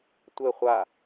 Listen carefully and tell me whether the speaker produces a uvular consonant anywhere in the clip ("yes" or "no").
yes